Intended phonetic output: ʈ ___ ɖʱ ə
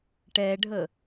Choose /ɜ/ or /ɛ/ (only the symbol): ɛ